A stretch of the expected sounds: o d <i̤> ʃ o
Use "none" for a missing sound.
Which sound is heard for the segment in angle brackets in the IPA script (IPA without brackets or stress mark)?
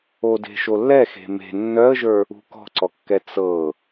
e̤